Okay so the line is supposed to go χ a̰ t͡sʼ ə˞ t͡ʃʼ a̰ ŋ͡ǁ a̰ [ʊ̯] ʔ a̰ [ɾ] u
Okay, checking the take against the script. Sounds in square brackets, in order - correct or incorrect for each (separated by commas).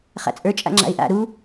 incorrect, correct